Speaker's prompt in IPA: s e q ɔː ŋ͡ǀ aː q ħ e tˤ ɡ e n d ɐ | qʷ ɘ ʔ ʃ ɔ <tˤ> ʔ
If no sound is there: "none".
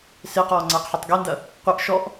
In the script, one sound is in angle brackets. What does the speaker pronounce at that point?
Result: none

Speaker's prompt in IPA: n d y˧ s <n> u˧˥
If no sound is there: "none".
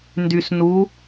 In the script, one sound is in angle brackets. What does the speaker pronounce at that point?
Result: n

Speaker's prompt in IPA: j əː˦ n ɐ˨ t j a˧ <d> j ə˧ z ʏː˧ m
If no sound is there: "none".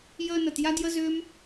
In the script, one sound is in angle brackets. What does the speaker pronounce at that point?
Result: d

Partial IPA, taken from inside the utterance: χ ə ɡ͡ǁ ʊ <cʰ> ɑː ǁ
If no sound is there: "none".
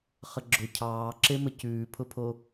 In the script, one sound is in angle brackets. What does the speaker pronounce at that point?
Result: cʰ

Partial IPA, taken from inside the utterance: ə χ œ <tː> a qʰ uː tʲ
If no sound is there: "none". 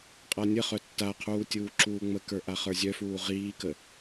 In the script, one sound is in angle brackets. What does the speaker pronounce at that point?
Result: tː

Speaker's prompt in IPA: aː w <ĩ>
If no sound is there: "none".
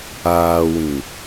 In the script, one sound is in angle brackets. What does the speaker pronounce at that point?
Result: ĩ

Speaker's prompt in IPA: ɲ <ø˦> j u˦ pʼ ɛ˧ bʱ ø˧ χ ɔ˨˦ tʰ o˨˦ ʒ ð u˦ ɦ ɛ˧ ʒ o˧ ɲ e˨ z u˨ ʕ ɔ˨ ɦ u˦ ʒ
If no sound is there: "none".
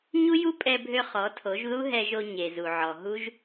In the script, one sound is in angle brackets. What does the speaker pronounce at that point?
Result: u˦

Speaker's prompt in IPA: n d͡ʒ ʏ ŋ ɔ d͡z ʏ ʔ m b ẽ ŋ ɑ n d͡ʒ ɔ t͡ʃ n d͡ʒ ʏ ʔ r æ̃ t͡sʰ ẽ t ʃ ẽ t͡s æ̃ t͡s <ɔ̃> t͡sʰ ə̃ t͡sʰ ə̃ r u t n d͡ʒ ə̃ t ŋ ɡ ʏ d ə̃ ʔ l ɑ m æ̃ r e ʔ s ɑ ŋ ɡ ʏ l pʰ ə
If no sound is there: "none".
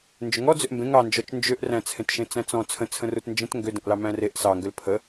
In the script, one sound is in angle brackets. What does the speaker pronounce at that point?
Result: ɔ̃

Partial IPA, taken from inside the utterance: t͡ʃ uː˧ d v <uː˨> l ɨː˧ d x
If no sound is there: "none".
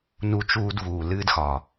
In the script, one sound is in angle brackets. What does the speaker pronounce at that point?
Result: uː˨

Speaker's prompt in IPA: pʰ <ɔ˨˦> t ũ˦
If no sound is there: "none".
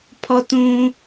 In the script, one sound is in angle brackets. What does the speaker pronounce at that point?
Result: ɔ˦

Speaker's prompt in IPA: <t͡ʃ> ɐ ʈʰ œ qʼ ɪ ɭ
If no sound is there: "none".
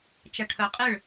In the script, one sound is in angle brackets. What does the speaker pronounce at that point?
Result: t͡ʃ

